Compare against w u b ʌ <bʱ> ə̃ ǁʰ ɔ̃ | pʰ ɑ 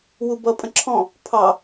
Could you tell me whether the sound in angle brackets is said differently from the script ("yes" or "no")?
yes